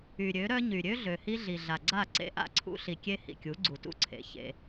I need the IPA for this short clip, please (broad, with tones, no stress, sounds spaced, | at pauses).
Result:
y˨ ɾʲ ø˨˦ ɾ œ˦ ɲ y˨ ɾʲ ø˦ ɮ ø˨ h i˦ ɮ i˨ ɮ a˨ ɡ͡ǀ a˦˨ ǀ ḛ˦ ʔ a̰˦ ǀʰ ṵ˦ ɬ i˨ kʲ e˦ h ḭ˨ kʲ u˨˦ ɡ͡ǀ u˨ t ṵ˦ ǀʰ ḛ˨ ç ḛ˦